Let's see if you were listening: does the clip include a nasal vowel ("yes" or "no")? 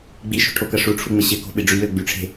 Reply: no